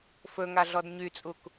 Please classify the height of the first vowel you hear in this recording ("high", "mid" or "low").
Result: mid